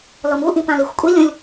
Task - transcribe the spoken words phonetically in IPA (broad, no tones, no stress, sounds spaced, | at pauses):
l ɔ m u ʔ ĩ p ã l i xʷ kʷʼ i lʲ ũ lʲ